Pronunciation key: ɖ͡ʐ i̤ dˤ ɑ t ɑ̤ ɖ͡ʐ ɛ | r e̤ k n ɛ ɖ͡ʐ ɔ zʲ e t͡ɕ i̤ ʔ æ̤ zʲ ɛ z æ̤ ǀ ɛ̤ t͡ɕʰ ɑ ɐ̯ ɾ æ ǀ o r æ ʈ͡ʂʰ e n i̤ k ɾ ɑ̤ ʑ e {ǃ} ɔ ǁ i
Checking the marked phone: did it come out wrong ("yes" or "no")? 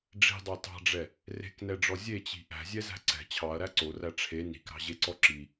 yes